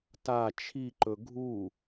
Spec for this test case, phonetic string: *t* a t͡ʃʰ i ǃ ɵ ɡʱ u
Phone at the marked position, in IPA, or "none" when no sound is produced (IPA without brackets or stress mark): t